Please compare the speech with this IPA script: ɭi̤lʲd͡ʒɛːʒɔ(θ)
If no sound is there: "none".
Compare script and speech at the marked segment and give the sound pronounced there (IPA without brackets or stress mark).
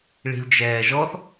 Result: θ